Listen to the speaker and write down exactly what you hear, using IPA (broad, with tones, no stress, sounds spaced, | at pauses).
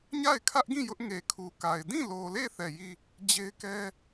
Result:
ɲ a˦˨ ɪ̯ kʰ ä˦ ʔ ɡ ĩ˦˨ j ʊ˦ ʔ ŋ e˨ kʰ u˨ k a˨ ɪ̯ d ĩ˦˨ l o˨ l e˦˨ θ ɛ˦˨ j i˦˨ | d͡ʑ e˦ ɪ̯ k ɛ˦